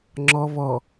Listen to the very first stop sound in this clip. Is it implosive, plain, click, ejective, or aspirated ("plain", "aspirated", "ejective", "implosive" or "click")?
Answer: click